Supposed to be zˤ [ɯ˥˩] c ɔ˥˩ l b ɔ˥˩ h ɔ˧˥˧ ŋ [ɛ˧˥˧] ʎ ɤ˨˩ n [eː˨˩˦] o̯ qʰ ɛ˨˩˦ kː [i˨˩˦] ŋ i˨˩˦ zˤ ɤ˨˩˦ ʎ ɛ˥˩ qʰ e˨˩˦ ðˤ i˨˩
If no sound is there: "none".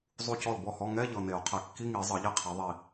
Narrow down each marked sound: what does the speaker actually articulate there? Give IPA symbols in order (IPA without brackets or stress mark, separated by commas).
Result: u˥˩, ɛ˧˥˧, e˨˩˦, i˧˥˧